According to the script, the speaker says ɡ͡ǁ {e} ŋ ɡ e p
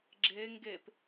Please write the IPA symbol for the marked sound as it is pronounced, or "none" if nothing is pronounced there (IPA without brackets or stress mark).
e